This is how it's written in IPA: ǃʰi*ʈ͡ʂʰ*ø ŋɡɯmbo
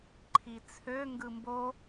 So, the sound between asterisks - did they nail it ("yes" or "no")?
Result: no